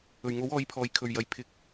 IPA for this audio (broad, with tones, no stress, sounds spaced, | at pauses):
ɵ˨˩ ɥ ŋ o˨˥ w ɔː˨˧ j pʰ ɔː˨˩ j kʰ ɵ˨˩ ɥ j ɐ˨˩ j pʰ ɪ˨˥ k̚